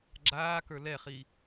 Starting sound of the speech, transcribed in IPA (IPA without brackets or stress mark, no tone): ɡ͡ǁ